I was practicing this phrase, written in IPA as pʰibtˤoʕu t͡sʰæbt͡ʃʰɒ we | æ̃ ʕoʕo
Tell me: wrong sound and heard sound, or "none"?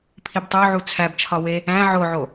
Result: none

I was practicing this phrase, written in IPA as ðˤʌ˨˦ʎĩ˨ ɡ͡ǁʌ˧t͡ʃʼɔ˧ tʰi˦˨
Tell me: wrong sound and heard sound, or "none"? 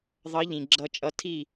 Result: ɔ˧ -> ʌ˧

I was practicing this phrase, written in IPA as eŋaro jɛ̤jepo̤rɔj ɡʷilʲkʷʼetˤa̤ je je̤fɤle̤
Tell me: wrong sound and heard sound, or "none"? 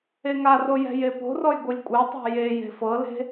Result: none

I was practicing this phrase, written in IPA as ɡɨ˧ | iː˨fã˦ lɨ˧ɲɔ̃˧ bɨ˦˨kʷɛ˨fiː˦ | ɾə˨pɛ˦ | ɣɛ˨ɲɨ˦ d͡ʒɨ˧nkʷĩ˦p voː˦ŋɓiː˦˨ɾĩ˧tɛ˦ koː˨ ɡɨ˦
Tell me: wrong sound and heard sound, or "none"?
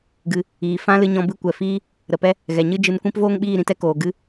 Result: none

